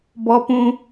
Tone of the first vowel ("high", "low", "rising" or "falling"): high